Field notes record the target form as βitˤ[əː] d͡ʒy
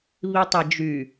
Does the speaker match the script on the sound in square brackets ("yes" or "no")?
no